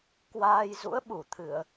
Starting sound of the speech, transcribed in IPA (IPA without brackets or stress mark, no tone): k